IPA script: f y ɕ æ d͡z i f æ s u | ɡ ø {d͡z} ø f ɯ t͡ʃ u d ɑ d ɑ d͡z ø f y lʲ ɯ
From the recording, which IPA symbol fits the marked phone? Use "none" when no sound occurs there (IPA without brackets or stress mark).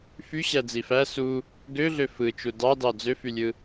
ɮ